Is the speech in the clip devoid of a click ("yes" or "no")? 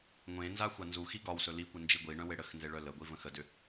yes